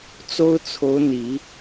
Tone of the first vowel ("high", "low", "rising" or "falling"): high